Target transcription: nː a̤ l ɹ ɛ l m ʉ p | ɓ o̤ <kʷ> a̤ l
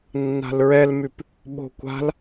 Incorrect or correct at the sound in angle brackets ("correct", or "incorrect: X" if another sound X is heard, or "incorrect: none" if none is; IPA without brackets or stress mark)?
correct